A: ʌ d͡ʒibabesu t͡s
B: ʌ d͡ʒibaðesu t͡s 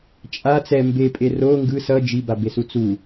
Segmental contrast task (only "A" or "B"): A